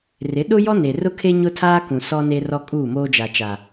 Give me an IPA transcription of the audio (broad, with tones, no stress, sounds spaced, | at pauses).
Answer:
r ɪ˨˦ ɗ ʊ˦ j ɔ˦ n e˨ r ʊ˦ kʰ e˦ ɲ ʊ˦ tʰ aː˦ k ũ˨ s ɔ˦ n e˦ r ɔ˦ kʼ uː˦˨ m oː˦ d͡ʒ a˨ t͡ʃ a˨